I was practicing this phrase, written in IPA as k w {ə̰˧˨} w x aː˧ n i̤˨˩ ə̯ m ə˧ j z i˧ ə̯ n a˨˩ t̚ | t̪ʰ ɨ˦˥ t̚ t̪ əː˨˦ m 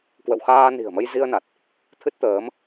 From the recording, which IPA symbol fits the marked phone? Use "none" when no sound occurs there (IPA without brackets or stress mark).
ə̰˧˨